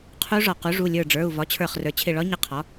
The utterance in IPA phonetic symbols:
qʰ u˧˥ ʐ ɒ˩ q u˩˥ ʐ u˩˧˩ lʲ ə˞˧˩ ɖ͡ʐ ə˞˩˧˩ u̯ v ɒ˩˥ t͡ɕʰ ə˞˧˩ χ r ə˞˩˥ t͡ɕʰ ɪ˧˩ ɭ ɒ˧˥ ɲ ɪ˧˩ qʰ ɒ˩˥

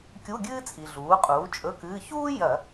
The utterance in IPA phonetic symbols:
kʲ u˧˥˧ ɡʲ ɨː˥ t͡sʼ i˩ ɮ uː˩˥ qʼ uː˩˥ t͡ʃʼ ɵ˧˥˧ k ɨː˧˥˧ ç uː˥ j ɐ˧˩˧

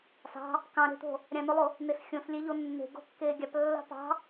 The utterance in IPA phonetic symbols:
s ɑ̤ | k ɑ̃ ɾ e̤ t̪ o̤ | ɾʲ ɑ̃ n o lˠ o | n e s xʲ õ s lʲ e ʎ o nː e̤ ɡ o̤ kː eː ɡʲ ɑ p lː ɑ̤ p ɑ̤

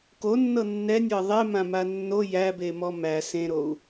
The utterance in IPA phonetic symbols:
k o nː ɤ nː ɛ nʲ ɤ ðˤ e m ã m a nː o j æ b e m ɔ m æ s ẽ ɾ o u̯

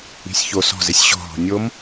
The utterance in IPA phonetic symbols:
i̤ sʲ ç o s ɔ̤ z e sʲ ɕ ɔ̤ ɦ ɔ̤ nʲ o m

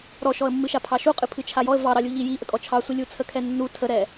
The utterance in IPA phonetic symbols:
ɾ ɔ ʃ ɔ ə̯ mː ɨ ʃ a pʰ ɑ ʃ u qʼ ɨ pʰ ɨ t͡ʃʰ a j ɔ ə̯ v ɑ ɾ ɑ lʲ u ʎ i j i ʔ ə kʼ ɔ t͡ʃʰ ɑ sʷ i lʲ u t͡sʰ ə kʰ ɛ nː u tʰ ə ɾ ɛ

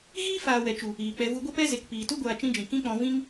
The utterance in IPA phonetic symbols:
ɣ iː˦ f aː˨ w ɛ˨ t͡ʃ u˨ | iː˨ k͡p ɛ˧ v u˧ ɡʷ ɛ˦ p ɛ˦ z e˨ k p iː˨ t u˦ ɡʷ aː˧ t͡ʃ ĩ˦ d͡ʒ ĩ˨ k ĩ˦ k͡p ɔ̃˧ v ĩ˦ ŋ

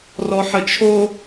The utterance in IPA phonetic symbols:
r ɔ ħ ə t͡ʃʰ o

